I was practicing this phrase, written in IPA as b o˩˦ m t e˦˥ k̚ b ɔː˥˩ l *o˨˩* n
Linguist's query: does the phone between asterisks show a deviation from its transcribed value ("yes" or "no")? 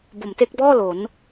yes